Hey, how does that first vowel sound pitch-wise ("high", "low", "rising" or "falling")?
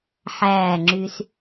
falling